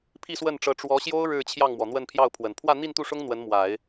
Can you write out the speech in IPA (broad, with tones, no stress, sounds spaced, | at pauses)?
pʰ i˥˧ s w ə˥˩ n ʈ͡ʂ ɤ˧˥ ʈ͡ʂ w ɔ˧˥ ɕ j o˥ ʊ̯ ɻ ɻ̩˥˧ t͡ɕʰ j ɑ˥˩ ŋ m w ɔ˩ n̪ w ə˥˧ n pʰ j ɑ˥˩ ʊ̯ pʰ w ə˨˩ n pʰ w ä˥˧ n̪ i˥˧ n t̪ u˥˩ ʂ ʊ˥ ŋ n̪ w ə˧˥ n m w a˨˩˦ ɪ̯